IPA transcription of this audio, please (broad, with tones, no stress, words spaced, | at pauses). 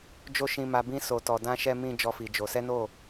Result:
d͡ʒo˦ʃĩ˧ ma˧bĩ˦ so˧tɔ˧ dã˦ʃɛ˦ mĩ˦ d͡ʒɔ˦fi˧d͡ʒo˧ sɛ˦no˦˨